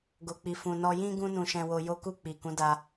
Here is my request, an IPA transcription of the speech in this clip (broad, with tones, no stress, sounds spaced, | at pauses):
ɡ o˨ k͡p i˨ f ũ˨ n ɔ˧ j ĩ˦ ɡ ũ˦ n ũ˧ ʃ ɛ̃˧ w o˧ j o˦ k u˦˨ k͡p i˨ k ũ˨˦ d a˧